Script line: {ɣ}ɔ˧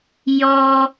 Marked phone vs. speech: incorrect: j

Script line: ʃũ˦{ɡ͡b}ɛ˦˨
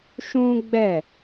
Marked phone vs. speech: correct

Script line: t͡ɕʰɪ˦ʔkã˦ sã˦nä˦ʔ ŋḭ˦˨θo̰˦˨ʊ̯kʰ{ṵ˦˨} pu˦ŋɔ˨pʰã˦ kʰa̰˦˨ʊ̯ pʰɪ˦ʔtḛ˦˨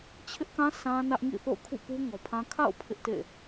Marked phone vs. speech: correct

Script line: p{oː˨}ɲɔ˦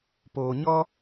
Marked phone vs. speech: correct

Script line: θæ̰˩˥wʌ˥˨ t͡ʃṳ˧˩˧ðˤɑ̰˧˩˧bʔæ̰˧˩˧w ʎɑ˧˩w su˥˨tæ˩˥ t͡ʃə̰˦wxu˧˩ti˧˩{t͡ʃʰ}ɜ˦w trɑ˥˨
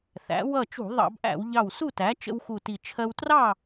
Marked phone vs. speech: correct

